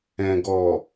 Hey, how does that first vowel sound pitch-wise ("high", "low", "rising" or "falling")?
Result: low